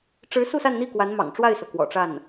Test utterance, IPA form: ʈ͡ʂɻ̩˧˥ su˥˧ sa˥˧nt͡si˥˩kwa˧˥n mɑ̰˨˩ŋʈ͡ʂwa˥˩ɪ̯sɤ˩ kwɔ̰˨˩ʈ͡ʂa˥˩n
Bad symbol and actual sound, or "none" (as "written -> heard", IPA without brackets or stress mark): t͡s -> n̪